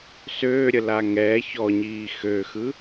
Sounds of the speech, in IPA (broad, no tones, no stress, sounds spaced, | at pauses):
s øː ɾʲ ə l a ŋ ɛ ç ɔ ɲ iː x ø x ɯ